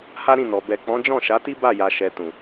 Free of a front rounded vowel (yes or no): yes